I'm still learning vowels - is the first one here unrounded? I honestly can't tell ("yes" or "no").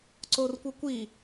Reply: no